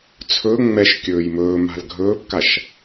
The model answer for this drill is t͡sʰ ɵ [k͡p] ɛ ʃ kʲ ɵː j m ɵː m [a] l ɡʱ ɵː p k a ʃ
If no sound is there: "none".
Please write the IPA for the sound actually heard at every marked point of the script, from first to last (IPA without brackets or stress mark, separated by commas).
ŋ͡m, a̤